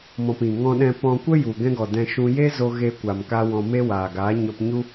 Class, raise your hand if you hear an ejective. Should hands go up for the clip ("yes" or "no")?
no